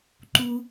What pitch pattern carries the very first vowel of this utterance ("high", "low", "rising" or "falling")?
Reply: high